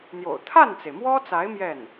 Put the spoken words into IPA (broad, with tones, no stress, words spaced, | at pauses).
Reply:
n̪jo̰˨˩ʊ̯ t̪ʰa˥˩nt͡se˩ɪ̯mwɔ˥t͡sa˧˥ɪ̯ mjɛ˥˩n